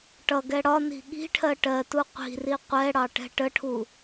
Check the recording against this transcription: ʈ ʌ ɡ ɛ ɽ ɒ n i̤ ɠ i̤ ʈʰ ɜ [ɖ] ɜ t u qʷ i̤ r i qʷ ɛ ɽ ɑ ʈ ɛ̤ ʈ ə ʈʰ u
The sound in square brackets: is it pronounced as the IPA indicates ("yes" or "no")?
no